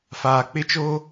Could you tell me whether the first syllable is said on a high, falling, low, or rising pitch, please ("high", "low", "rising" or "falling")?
low